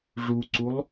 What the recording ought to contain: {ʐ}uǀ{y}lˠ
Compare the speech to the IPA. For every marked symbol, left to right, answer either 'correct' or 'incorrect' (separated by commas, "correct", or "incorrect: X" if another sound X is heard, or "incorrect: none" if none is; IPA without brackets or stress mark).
correct, incorrect: u